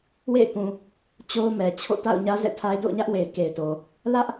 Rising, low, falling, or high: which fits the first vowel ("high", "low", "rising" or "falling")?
falling